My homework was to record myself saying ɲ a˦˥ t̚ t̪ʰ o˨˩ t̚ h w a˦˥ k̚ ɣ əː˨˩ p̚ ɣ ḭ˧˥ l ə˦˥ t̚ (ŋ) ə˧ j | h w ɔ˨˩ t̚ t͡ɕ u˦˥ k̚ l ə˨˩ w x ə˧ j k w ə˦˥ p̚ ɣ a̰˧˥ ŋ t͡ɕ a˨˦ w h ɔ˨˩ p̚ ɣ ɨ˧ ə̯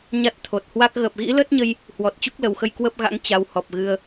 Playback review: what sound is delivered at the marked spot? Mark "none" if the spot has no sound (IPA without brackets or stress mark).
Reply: ɲ